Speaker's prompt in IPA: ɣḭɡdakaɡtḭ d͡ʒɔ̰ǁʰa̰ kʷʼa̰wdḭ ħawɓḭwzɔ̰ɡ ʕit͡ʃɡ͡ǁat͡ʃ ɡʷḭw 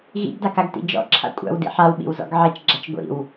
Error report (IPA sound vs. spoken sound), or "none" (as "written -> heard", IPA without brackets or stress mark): none